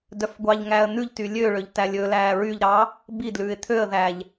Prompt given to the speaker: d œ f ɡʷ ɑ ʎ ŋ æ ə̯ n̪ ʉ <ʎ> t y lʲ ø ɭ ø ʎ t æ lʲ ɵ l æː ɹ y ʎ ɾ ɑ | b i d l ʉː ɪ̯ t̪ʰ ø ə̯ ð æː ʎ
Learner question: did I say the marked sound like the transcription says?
yes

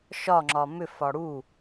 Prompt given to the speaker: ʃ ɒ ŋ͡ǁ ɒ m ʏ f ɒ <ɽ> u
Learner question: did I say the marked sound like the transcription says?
yes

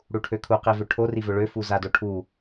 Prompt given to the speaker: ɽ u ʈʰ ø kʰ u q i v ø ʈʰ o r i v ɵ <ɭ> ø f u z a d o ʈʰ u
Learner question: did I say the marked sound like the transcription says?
yes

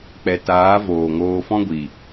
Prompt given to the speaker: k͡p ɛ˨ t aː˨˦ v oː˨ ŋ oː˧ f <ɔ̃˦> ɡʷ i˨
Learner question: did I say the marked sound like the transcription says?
yes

